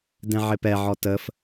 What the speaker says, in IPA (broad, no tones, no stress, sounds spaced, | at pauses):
d ɛ̃ ʕ ɪ p ɛ ʕ ɔ t ə f